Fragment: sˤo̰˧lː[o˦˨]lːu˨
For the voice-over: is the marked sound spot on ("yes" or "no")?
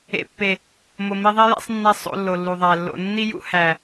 no